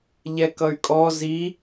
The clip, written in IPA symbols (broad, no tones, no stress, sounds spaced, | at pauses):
ʎ ɛ k ʌ y̯ kʼ ɔ z i